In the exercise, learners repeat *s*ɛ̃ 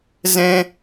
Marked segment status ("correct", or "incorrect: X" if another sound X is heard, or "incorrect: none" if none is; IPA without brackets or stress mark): incorrect: z